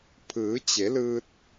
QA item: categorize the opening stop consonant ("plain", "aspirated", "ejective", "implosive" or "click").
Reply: aspirated